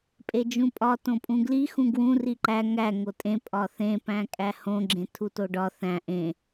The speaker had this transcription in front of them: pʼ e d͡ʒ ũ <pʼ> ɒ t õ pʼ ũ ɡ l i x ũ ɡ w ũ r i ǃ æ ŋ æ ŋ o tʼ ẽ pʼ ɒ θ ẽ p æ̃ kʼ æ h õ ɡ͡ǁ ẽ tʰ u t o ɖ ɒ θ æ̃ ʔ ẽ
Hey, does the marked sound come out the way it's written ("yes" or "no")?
yes